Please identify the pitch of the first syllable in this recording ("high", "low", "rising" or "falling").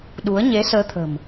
rising